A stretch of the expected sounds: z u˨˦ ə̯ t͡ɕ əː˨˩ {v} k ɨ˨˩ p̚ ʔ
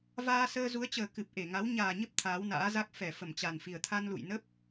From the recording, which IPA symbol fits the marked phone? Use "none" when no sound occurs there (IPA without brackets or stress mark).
none